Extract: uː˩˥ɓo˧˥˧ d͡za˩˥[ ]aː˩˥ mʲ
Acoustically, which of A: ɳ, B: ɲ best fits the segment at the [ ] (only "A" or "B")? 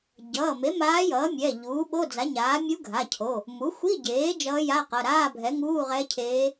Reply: B